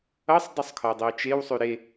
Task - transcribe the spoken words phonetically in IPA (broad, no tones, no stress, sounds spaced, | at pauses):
ʌ sˤ dˤ y sˤ kʰ ɒ dˤ e ʊ̯ t͡ʃ e w sˤ y ɾ e